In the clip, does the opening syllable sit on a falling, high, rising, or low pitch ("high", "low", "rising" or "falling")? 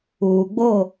low